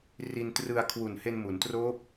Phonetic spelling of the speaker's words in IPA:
r i˧ n t r ɯ˧ a̯ kʰ w u˨˩ n h e˧ n m u˩˦ n t r oː˦˥ p̚

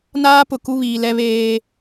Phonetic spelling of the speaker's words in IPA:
n aː˦ p ʊ˨ k u˦ β iː˨ l ɛ˦ β eː˦

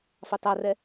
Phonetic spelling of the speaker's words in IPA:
f ɑ t ɑ r ɛ

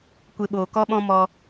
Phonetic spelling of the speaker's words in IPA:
kʷ e˧ ɓ oː˨ k ɔ˦ ɓ ɔ̃˦ m ɔ˧

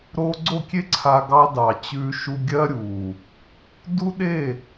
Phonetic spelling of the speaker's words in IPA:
ɾ o˧ ɡ͡ǀ o˦˨ kʲ e˦ ǀʰ a˧ ɡ ɑ˧ d ɑ˨ t͡ɕ ʉ˧ ʃ u˧ ɡʲ ɜ˦ ɾʲ u˨ | d u˦ ɗ e˦˨

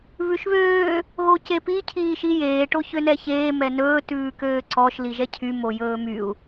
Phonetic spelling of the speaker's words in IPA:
β ʉ ʃ β øː | ɣ o c e p i cʰ iː ʃ i j eː ʈ o ç ø n ɛ ç eː m ɛ n ɵː t ʉː k øː ǀ ɔ ʃ l i ʒ ɛ cʰ y m o j ɵː m y u̯

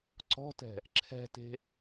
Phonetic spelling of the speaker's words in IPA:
ǀ ɔ̤ t ɛ̤ | ǁʰ ɛ̤ t e̤

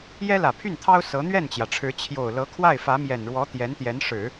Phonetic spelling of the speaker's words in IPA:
j ɛ˥ l ä˨˩ pʰ y˥˩ n t̪ʰ ɑ˥ ʊ̯ s ɤ˧˥ n̪ ɥ ɛ˥˩ n t͡ɕ j ä˩ ʈ͡ʂʰ ɻ̩˧˥ t͡ɕʰ j o˨˩ ʊ̯ l ɤ˧˥ kʰ w a˥˩ ɪ̯ f ä˧˥ m j ɛ˨˩ n ɻ w ɔ˧˥ t̪ j ɛ˧˥ n t̪ j ɛ˧˥ n ʂ ɻ̩˨˩˦

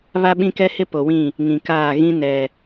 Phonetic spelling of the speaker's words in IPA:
β a˦ ɓ ĩ˦ k ɛ˦ h ɪ˦ p o˨ w ĩ˦˨ | ŋ ĩ˨ k aː˦˨ ɣ ĩ˦ n ɛ˨

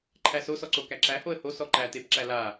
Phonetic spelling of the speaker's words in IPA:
ǃʰ æ s o s ɔ ǀ o k æ ǁ æ h o ə̯ h o s ɔ ǃ æ t e p ǁ æ l a

